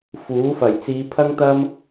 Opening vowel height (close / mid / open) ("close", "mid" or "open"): close